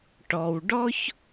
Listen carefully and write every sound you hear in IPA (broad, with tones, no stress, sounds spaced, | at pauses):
ʈ ɔ˨ w ɖ ɔ˦ ç